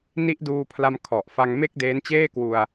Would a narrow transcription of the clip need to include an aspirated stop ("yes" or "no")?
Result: yes